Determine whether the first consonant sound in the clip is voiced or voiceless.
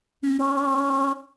voiced